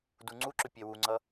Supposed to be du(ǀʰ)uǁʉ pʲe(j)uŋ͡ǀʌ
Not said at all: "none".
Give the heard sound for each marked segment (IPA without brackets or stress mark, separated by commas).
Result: ŋ͡ǀ, w